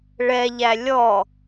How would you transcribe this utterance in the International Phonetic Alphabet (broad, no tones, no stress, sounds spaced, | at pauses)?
ɭ ɛ ʎ æ lʲ ɔ